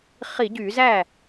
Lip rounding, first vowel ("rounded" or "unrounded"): unrounded